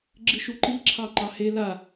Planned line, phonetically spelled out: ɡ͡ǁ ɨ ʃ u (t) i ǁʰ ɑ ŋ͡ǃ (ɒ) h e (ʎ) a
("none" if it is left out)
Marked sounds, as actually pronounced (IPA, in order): ǃ, ɑ, l

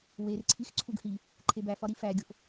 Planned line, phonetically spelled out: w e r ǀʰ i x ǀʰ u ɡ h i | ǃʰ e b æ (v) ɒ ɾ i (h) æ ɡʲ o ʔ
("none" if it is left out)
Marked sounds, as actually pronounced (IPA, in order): f, f

